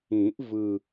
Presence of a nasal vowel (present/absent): present